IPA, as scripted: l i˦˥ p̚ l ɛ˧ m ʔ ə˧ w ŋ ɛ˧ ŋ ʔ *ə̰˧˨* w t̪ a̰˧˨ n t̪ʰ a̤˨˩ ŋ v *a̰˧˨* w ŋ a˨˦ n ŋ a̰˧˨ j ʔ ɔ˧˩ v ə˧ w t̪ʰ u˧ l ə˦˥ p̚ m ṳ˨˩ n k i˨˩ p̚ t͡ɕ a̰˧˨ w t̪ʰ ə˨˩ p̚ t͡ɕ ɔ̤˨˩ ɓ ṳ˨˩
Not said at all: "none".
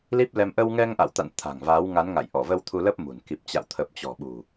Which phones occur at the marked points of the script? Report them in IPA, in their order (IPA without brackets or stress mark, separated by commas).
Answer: a̰˧˨, a˨˦